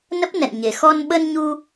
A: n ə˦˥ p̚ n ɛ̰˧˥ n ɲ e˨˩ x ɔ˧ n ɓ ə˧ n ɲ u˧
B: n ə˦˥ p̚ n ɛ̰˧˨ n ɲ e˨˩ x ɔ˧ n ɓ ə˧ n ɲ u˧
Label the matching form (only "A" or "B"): B